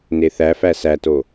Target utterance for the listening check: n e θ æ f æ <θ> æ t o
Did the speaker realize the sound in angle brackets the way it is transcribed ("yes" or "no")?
no